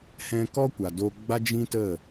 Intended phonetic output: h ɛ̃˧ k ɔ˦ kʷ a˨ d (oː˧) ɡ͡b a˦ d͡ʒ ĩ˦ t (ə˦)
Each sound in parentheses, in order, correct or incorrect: incorrect, incorrect

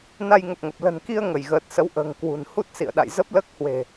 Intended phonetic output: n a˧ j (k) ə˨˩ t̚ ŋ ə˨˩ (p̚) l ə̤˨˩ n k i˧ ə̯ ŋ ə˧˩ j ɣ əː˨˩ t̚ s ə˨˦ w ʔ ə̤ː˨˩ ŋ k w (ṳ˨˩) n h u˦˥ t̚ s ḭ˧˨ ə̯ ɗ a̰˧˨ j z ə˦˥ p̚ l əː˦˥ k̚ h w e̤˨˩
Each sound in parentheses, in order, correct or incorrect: incorrect, correct, correct

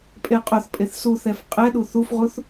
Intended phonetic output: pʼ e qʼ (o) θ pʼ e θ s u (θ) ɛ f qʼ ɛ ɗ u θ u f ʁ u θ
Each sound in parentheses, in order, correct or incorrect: correct, correct

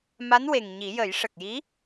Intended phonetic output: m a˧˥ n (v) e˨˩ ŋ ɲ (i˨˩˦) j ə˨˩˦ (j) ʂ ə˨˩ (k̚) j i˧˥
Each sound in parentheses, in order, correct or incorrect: incorrect, correct, correct, correct

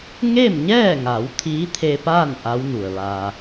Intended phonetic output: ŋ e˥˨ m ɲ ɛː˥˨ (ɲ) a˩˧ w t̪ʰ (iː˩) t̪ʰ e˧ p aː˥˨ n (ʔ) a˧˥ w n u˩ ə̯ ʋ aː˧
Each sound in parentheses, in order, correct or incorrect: incorrect, incorrect, correct

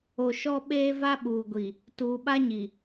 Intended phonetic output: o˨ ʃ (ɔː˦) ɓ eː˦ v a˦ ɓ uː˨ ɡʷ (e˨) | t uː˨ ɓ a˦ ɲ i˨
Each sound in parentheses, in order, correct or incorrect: incorrect, incorrect

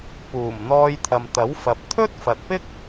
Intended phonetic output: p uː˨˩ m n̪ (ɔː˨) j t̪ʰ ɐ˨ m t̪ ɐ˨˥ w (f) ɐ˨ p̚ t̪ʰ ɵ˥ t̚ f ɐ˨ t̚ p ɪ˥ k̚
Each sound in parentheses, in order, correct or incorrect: incorrect, correct

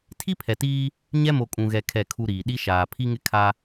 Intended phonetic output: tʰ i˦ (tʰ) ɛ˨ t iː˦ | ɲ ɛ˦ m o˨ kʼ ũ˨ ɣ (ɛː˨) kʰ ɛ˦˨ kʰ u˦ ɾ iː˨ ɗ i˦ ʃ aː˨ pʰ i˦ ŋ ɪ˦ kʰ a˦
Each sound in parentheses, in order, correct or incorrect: incorrect, incorrect

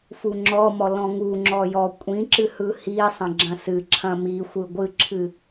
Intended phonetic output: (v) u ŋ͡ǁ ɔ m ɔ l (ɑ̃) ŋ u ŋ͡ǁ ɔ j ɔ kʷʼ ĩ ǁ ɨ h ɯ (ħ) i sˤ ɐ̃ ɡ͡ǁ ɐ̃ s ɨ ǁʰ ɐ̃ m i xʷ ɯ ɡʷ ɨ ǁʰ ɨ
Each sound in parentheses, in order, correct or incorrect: incorrect, incorrect, incorrect

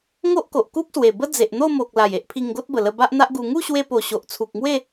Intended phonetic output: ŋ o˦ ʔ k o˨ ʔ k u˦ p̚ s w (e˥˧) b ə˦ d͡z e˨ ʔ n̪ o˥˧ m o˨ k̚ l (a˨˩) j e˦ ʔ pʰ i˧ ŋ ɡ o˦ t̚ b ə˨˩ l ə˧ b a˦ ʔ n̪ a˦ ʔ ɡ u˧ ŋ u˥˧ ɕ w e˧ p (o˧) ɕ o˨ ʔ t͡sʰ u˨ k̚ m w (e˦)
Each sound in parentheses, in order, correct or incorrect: incorrect, correct, incorrect, incorrect

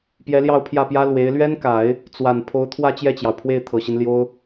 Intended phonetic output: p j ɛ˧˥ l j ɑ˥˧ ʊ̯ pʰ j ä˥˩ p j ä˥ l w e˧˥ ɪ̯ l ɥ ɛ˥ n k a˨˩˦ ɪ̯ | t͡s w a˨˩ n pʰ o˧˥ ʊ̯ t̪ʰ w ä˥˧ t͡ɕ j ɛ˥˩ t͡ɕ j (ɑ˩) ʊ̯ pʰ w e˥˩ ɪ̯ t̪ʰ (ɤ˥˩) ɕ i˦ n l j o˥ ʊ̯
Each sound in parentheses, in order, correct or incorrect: correct, incorrect

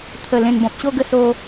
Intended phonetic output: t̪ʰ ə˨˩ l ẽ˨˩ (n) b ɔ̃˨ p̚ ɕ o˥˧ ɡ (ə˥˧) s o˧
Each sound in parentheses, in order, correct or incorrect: correct, correct

